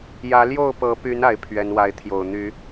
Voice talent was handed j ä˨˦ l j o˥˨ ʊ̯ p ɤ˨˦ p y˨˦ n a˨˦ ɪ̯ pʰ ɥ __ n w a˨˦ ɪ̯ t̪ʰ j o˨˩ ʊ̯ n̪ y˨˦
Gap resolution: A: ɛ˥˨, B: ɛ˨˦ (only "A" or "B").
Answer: B